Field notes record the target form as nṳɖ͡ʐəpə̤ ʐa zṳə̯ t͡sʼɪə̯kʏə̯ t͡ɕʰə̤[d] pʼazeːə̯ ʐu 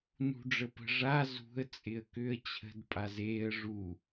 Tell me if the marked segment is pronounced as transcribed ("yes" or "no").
yes